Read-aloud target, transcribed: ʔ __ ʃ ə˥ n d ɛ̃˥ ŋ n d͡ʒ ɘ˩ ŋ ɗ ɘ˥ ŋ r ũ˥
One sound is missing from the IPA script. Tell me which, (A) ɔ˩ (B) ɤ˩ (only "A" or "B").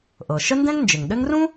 B